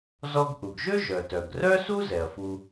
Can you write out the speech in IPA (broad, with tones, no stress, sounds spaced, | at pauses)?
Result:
z ɔ˧ ɡ ʔ u˩ ɡ ʒ ø˥ ʒ œ˩ t œ˩ ɡ r œ˥ s u˥ z ɛ˩ ɐ̯ f u˧